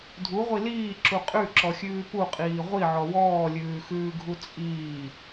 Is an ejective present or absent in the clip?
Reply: present